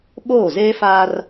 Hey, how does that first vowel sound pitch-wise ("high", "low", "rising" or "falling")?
falling